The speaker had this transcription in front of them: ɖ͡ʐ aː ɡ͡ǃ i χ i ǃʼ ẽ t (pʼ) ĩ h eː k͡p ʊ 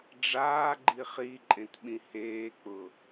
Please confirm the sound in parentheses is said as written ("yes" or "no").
no